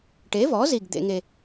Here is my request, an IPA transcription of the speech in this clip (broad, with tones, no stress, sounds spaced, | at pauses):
ʈ e˩˥ v ɔ˩˥ z i˨˩ ɡ d̪ ḛ˧˩˧ ŋ e˨˩